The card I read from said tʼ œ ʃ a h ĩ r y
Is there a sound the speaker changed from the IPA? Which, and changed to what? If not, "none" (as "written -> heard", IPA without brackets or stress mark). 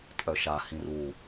y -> u